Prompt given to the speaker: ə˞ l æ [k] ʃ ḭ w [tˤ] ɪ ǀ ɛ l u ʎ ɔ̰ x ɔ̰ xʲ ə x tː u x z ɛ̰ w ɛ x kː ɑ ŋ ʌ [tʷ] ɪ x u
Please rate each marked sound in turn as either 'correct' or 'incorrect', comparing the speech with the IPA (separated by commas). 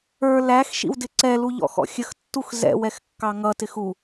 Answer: incorrect, incorrect, incorrect